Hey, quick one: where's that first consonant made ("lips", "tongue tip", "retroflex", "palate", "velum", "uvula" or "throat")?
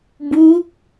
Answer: lips